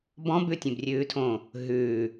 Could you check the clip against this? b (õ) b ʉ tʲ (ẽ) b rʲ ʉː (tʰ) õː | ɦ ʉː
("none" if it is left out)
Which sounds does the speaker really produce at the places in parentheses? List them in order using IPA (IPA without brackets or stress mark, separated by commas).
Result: ɔ̃, ẽ, tʰ